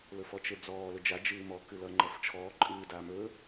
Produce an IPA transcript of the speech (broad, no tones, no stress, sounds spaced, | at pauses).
l ɵ f ɔ t͡ʃ e d͡z ɔː l ɵ d͡ʒ a d͡ʒ ɨː m ɔ k ɨ l ʌ ŋ͡ǃ ʌ f t͡ʃʰ ɔː ǃʼ ɨː d aː m ɵ